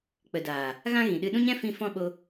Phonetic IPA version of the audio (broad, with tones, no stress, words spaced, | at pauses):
k͡pə˨daː˨ | ɣã˦ɣĩ˨ɗɨ˧ ɗũ˦ɲɛ̃˦fĩ˧ fɔ̃˦ ɓo˧